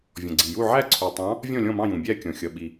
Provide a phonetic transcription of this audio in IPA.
vʲ ɔ̃˩ ɡ͡ǀ i˩ j u˦˨ ʕ æ˦˨ ǀʰ u˩ tˤ ɑ̃˨˦ | vʲ ɔ̃˦˨ lʲ ɔ̃˦˨ m ɑ̃˦˨ j ũ˩ bʲ æ˦˨ kʲ ɔ̃˩ xʲ ʌ˩ ɓ i˩

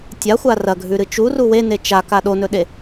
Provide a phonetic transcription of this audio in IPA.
tʲ a xʷ a r ɐ ɡʱ ʉ ɾ ɨ t͡ʃ u r u w e n e t͡ʃ a k a ɗ o n ɵ ɗ e

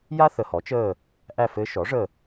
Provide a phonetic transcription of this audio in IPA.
j a˥ θ ə˨ h ɔ˩˥ t͡ʃ əː˦˨ | ʔ æ˦˨ f ɘ˧˥ ʃ ɔ˩˥ ʐ ə˦˨

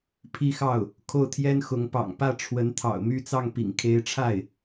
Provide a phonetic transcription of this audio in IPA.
pʰ i˥˧ x ɑ˥˩ ʊ̯ | kʰ o˥˩ ʊ̯ t̪ʰ j ɛ˥ n x ʊ˧˥ ŋ p ɑ̰˨˩ ŋ p ä˥˩ ʈ͡ʂʰ w ə˧˥ n t̪ʰ ɑ̰˨˩ ʊ̯ m y˥˧ t͡s ɑ˥˩ ŋ p ḭ˨˩ ŋ kʰ e˧˥ ɪ̯ ʈ͡ʂʰ a˥˩ ɪ̯

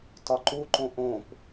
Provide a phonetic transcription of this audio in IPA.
t ɒ ǃ u ǃ õ ʔ õ p

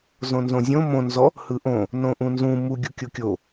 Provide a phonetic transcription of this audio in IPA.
z õ n z õ zʲ õ m õ n z ɔ | h ɯ ʔ õ | n õ ʔ ũ n z ũ m u ɡʲ u kʲ o kʲ o

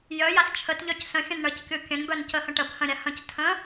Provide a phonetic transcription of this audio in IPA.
j œ j a s t͡ʃʰ ə t ʎ œ c s ə̃ xʲ ə̃ n ɳ ə c kʲ o kʲ ə̃ n b œ n c ə h ə̃ ʈ ə b h ə̃ ɾʲ a h ə̃ c tʰ ə̃

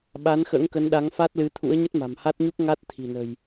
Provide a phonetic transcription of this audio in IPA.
ɓ a˨˦ n x ə̰ː˧˥ ŋ k ə˨˦ n ɗ a˨˦ ŋ f a˦˥ t̚ l ɨ˨˦ t̪ʰ ṵ˧˥ ə̯ ɲ ə˦˥ t̚ m a̤˨˩ m h a˦˥ t̚ ɲ u˦˥ k̚ ŋ a˦˥ t̚ t̪ʰ i̤˨˩ n ə̤˨˩ j

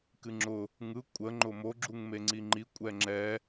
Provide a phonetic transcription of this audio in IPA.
k ɨ ŋ͡ǁ ʊ | ŋ ɯ kʷʼ ə ŋ͡ǃ ʊ m o ɡ͡ǁ u ŋ m e ŋ͡ǀ i ŋ͡ǃ i kʷʼ ɛ ŋ͡ǁ ɛ

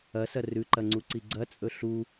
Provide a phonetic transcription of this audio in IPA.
ɐ s ɐ r ʉ ǃ ɐ ŋ͡ǀ u ǀ i ɡ͡ǀ ɐ t͡sʼ ɵ ɬ u

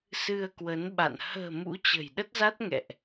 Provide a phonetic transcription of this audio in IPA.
s ɨ˧ ə̯ k w ə˨˦ n ɓ a̰˧˨ n h ə̤ː˨˩ m ṵ˧˥ t͡ɕ ə̤˨˩ j ɗ ə˦˥ t̚ z a˦˥ t̚ ŋ ɛ̰˧˨ ʔ

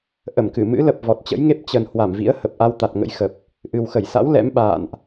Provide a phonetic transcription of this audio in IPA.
ʔ ə˧˩ m k ɨ˧˩ m ɨ̰˧˥ l ə˨˩ p̚ v ɔ˨˩ t̚ t͡ɕ ə̰˧˥ j ŋ e˦˥ p̚ t͡ɕ ə˨˩ n h w a˧˩ m v ḭ˧˥ ə̯ h ə˨˩ p̚ ʔ a˧ w t̪ a˨˩ t̚ ŋ ə̰˧˥ j x ə˨˩ p̚ | ʔ ɨ˨˩ w x ə˧˩ j s a̰˧˥ w l ɛ̰˧˥ m ɓ a̰ː˧˨ n ʔ

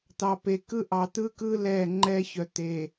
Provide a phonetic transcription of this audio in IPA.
t̪ ɑ˨ p e˨ k ɯ˦ ʔ ɑ˨ t̪ ɯː˦ k ɯː˦ l ɛː˦˨ ŋ͡ǃ ɛː˦ ç œ˨ t̪ eː˨

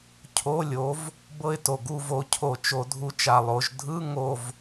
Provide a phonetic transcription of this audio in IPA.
cʰ o˧˥˧ lʲ o˨˥ v | b ɤ˦˨ ɪ̯ t o˨˩ ɡ u˦˨ v o˨˥ cʰ o˧˩˧ t͡ʃ o˧˩˧ dʱ u˨˥ t͡ʃ a˨˩ lˠ o˩˧ ʒ dʱ ɯ˧˥˧ ŋ o˦˨ v

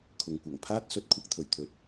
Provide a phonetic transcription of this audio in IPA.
kʰ ʊ˨ ŋ kʷ ɐ˨˩ ŋ pʰ aː˥ t̚ s ɵ˨˥ t̚ kʷʰ ɐ˨˥ k̚ t̪ʰ ɵ˨˩ ɥ t̪ʰ ɵ˨ t̚

